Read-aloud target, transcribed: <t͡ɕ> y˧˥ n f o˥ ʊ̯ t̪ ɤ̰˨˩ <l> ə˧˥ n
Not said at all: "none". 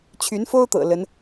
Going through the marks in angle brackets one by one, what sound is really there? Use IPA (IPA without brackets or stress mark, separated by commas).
t͡ɕʰ, l